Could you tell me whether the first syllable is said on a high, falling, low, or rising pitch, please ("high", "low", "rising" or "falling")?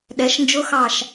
rising